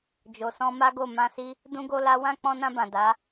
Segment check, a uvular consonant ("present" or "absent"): absent